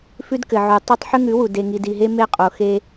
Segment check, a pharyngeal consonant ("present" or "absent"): present